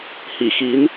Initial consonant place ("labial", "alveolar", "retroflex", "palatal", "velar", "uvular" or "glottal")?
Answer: glottal